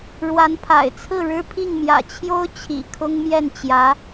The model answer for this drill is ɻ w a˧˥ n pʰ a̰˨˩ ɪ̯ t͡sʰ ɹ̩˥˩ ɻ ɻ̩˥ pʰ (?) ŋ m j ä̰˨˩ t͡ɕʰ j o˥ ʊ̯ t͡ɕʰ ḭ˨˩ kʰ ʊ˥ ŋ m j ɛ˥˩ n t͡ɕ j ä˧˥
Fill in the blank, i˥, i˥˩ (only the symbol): i˥˩